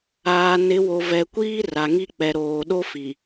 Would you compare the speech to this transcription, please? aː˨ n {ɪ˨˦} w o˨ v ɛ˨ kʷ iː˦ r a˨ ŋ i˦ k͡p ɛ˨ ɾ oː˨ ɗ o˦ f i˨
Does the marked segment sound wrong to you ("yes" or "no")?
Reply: no